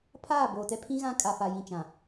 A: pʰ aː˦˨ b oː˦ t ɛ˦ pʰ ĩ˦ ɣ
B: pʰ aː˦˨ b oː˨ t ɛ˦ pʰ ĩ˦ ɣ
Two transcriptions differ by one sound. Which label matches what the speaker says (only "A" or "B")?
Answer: B